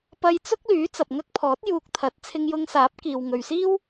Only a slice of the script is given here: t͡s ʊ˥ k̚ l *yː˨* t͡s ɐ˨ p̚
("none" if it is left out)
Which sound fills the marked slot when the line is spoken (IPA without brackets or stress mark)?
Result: yː˨˥